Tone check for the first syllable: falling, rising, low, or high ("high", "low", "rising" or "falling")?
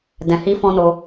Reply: low